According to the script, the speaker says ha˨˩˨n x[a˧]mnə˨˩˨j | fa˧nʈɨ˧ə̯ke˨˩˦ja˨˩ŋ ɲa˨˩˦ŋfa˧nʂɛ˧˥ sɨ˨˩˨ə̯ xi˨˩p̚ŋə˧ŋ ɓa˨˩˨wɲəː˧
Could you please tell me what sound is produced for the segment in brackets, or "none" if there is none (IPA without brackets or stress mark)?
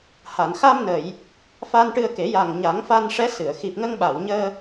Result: a˧